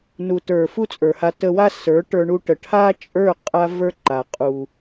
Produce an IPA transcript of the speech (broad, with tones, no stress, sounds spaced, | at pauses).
n u˨ t ə˞˨ f u˦ t͡sʼ ə˞˨ h a˧ t ə˧ w a˦ s ə˞˨˦ ʈ ə˞˧ ɳ u˧ ʈ ə˨ ʈʰ a˦ t͡ʃʼ ə˞˦˨ qʼ a˦ v ə˞˦ ǃ a˨ qʼ u˨